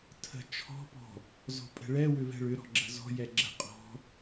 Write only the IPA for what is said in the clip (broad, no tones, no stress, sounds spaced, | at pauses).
tʰ ə̤ t͡ʃʰ ɔ̤ p ɔ̤ | z ɔ̤ pʼ ɛ̤ ɭ ɛ w ʏ v ɛ̤ ɭ ʏ ɾ ɔ̤ ɡ͡ǁ ə̤ z ɔ̤ j ɛ ɡ͡ǁ ə̤ qʼ ɔ̤